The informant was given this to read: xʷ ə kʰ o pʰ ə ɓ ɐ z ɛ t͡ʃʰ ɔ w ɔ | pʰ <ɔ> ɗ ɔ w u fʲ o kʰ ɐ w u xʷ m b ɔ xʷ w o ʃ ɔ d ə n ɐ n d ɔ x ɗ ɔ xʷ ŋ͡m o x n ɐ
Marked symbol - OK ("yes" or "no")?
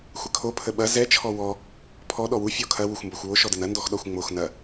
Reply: yes